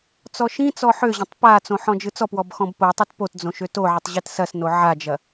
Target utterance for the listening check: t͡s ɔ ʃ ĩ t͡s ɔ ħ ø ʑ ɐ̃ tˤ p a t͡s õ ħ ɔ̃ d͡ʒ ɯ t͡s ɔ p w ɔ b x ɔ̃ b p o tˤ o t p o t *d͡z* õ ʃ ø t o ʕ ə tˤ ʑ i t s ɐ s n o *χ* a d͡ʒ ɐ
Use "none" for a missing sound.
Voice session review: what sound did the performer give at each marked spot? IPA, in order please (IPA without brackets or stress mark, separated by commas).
d͡z, ʕ